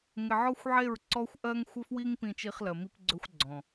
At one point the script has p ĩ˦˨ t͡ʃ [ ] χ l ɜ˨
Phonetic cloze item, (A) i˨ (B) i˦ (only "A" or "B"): B